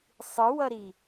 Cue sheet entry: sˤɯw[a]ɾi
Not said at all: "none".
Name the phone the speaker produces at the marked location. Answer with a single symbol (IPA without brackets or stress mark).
ʌ